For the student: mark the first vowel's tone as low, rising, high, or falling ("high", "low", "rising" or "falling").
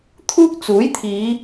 high